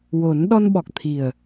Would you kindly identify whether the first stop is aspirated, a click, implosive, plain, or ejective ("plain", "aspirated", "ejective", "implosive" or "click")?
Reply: implosive